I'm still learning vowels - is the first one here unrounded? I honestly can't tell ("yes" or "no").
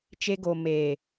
yes